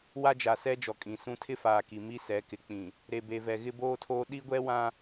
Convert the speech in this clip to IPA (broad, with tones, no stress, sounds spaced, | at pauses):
w a˦ d͡ʒ a˨ s ɛ˦ d͡ʒ ɔ˨ kʼ ĩ˨ s ũ˦ tʰ ɪ˦ f aː˨ k i˨ m i˦ s ɛ˨˦ k ɪ˨ k͡p ĩ˨ | ɾ e˨ b e˨ v ɛ˨ ɣ ɪ˦ b oː˦ tʰ oː˦ ɗ i˦ ɡʷ ɛ˦ w ã˦